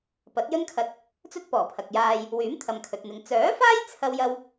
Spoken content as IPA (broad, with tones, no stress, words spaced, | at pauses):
pɐ˨˥t̚ jɵ˥nkʰɐ˧t̚ | t͡sɵ˥t̚pɔː˨˩pʰɐ˨k̚ jaː˧j | wyː˨˥mt̪ʰɐ˨mkʰɵ˨t̚n̪ɪ˨ŋ t͡sœː˨˥faː˥j t͡sʰɐ˥wjɐ˥w